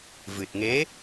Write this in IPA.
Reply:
v ɨ˨˩ t̚ ŋ e˧˥

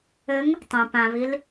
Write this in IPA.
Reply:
ɘ ŋ | tˤ ẽ p ã β i l

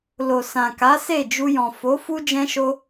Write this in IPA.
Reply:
l o˨ s ã˨ k a˨˦ s e˦˨ d͡ʒ u˧ j ɔ̃˨ f o˨˦ f u˦ d͡ʒ ɛ̃˦ ʃ o˦

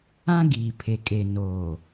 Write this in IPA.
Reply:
ã˦ ɡ iː˨ pʰ e˨ kʼ e˨ n oː˨

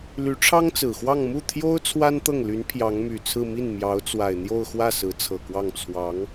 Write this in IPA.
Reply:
l y˧˥ ʈ͡ʂʰ ɑ˥ ŋ t͡s ɹ̩˨˩ x w ɑ˥˧ ŋ m u˥˩ t̪ʰ j o˥ ʊ̯ t͡sʰ w a˥ n t̪ ɤ˥˩ ŋ l y˧˥ n pʰ j ɑ˧˥ ŋ m y˨˩ t͡sʰ ɹ̩˥˧ m i˥˩ n m j ɑ˧˥ ʊ̯ t͡s w a˨˩ ɪ̯ n̪ j o˥˧ ʊ̯ x w ä˥˩ s ɹ̩˧˥ t͡sʰ ɤ˨˩ k w ɑ˥˩ ŋ t͡sʰ w ɑ˧˥ ŋ

